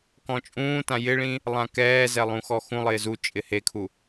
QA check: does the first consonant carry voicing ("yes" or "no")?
no